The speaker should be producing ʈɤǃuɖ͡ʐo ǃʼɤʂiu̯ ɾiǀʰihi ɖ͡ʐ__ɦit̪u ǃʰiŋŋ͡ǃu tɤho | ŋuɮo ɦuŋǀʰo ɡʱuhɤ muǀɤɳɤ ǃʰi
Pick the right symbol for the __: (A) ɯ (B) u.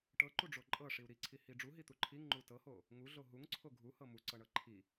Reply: B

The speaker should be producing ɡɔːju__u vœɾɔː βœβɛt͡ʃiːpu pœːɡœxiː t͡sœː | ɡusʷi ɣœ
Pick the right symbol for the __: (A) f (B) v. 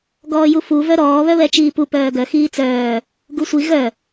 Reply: A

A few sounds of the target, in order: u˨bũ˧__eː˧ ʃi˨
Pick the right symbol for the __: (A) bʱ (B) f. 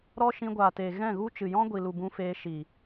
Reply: B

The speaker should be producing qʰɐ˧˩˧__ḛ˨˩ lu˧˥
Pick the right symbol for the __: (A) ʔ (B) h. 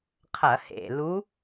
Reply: B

